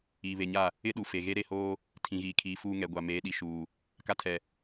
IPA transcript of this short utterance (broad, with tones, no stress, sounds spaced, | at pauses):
iː˨ β e˨ ɲ a˦˨ | ɪ˦ ɗ u˨ f e˨ ɣ e˦ ɾ e˦ h oː˦ | tʰ ĩ˨ ɣ iː˨ kʰ iː˨ f uː˦ ŋ ɛ˨ ɡʷ a˨ m eː˨˦ ɗ i˨ ʃ uː˨ | k a˦ tʰ ɛ˨